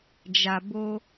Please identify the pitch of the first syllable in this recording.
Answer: low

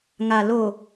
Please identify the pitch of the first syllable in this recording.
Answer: low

